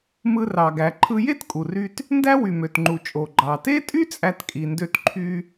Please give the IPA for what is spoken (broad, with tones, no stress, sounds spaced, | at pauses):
m ɯ˧ r ɑ˩ ɡ æ˩ ǃʰ ɯ˧ j e˥ t kʼ u˩ r y˧ t | n d æ˥ w y˩ m ø˩ t ŋ͡ǃ u˩ t͡ʃʼ o˩ ɡ͡ǃ ɑ˩ t e˥ tʼ y˥ t͡sʼ æ˧ t kʼ i˩ n d ø˧ t ǃʰ y˧